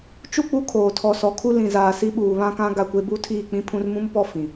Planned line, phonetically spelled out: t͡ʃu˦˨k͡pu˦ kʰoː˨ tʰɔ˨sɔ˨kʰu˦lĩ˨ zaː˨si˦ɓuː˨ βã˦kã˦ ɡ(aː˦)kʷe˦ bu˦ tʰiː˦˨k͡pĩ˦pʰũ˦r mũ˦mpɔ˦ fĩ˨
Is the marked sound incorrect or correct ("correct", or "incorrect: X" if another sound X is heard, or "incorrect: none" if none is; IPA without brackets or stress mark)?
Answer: incorrect: a˦